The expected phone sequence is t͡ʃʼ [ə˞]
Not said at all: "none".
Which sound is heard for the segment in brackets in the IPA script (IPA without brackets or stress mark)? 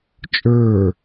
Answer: ə˞